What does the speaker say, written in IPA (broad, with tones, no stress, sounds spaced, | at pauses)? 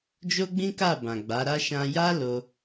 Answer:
d͡ʒ o˦ ɡ͡b ĩ˦ k a˦˨ b ã˨ ɡ͡b a˨˦ ɾ a˦ ʃ ã˧ j a˦ l o˧